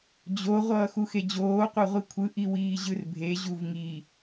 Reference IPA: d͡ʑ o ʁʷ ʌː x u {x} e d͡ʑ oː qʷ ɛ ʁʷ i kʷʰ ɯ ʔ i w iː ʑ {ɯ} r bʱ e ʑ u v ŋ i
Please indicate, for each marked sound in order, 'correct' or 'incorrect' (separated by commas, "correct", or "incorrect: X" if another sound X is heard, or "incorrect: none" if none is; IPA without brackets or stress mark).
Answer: correct, correct